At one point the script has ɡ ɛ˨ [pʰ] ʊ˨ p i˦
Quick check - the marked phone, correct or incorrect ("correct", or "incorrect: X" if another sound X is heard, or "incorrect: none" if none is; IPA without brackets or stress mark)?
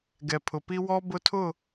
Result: correct